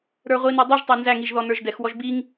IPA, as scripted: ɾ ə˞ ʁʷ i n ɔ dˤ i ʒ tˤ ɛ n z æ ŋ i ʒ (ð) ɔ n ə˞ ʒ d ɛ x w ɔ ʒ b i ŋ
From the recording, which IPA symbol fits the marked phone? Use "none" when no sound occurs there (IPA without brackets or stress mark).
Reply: ð